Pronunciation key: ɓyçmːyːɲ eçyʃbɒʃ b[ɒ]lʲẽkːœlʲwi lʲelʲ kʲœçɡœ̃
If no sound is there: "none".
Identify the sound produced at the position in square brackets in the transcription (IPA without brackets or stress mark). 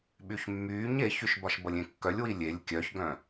ʌ